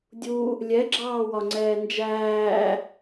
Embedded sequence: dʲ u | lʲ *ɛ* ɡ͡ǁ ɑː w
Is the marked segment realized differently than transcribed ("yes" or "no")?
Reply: no